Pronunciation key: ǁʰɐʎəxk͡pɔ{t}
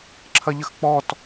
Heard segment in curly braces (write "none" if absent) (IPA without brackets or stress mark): t